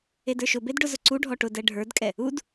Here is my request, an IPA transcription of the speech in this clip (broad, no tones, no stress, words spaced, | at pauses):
edə˞ʃʊbed ɖʊzʊǀuɖʱɔ ʈʊdɛ ɖʱə˞dkʼɛ | ud